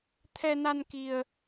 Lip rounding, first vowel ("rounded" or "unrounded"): unrounded